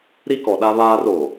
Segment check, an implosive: present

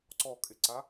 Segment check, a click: present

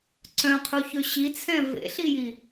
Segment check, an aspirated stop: present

